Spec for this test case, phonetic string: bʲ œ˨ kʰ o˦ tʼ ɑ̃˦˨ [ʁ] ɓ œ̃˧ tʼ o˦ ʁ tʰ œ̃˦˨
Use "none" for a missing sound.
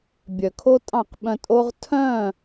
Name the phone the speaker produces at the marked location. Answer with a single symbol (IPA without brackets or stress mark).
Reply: q